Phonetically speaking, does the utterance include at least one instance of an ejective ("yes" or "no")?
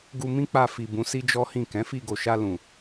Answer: no